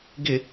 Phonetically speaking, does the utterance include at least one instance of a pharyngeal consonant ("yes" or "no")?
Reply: no